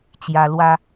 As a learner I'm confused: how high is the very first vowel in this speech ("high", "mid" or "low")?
low